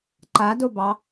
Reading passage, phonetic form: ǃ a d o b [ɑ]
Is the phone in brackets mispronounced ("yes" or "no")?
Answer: no